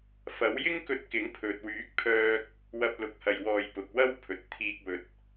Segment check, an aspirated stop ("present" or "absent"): present